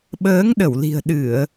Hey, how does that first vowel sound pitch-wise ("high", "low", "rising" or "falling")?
rising